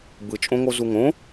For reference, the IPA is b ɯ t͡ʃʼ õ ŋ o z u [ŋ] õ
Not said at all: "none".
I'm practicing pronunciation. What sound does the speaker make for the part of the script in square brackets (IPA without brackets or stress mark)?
ŋ